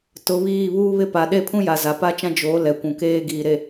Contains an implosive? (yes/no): yes